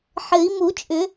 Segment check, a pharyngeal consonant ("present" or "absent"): present